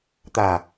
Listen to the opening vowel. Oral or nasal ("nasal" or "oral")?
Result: oral